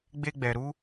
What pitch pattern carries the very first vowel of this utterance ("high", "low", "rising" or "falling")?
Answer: high